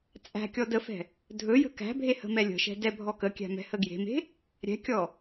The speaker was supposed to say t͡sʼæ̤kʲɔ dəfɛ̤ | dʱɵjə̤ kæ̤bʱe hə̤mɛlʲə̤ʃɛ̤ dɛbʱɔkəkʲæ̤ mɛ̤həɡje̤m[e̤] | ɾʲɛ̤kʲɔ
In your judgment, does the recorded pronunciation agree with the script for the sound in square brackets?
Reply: yes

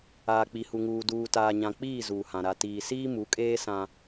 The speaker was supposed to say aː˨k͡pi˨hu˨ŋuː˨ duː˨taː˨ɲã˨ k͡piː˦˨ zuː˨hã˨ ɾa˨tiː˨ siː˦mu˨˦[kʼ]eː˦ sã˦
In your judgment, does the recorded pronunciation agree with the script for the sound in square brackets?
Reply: yes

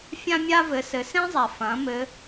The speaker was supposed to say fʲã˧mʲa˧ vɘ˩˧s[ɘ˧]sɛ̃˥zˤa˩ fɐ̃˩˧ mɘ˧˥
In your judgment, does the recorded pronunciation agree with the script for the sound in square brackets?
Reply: no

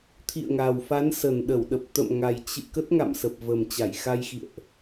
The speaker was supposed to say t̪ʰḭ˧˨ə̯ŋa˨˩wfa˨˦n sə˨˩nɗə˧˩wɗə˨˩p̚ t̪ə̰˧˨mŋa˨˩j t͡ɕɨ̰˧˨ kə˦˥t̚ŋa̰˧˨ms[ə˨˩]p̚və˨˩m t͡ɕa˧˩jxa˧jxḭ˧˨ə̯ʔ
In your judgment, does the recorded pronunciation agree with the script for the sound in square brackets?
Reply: yes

